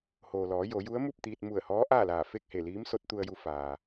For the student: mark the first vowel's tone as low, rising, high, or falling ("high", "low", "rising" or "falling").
low